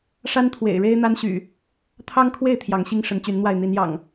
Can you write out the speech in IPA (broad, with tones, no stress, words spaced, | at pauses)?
ʂa˦n t̪ʰwḛ˨˩ɪ̯ɻe˦ɪ̯n̪a˦nɕy̰˨˩ | t̪ʰɑ˦ŋkʰwe˥˨ɪ̯ t̪ʰjɑ˨˦ŋɕi˦ŋʂə˨˦n t͡ɕy˨˦nn̪wa˥˨ɪ̯ n̪i˨˦njɑ̰˨˩ŋ